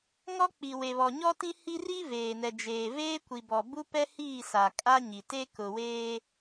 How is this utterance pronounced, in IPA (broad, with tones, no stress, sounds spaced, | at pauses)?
ŋ ɔ˦ k͡p i˨ w e˨ β ɔ˨ ɲ ɔ˦ t ĩ˦ h i˦ r i˦ v eː˨ n ɛ˨ d͡ʒ eː˨ v eː˦ kʷ i˨ b ɔ˨ b u˦ p ɛ˦ h iː˦˨ s a˨ kʼ a˦ ɲ i˨ t e˦ k ʊ˨ w eː˦